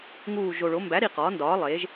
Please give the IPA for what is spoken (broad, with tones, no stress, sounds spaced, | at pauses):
ŋ uː˨˩ ʒ o˨˩ ɭ o˩˥ m b æ˩˥ ɾ i˨˩ q ɒː˩˥ n d ɒː˩˥ lˠ eː˩˥ ʒ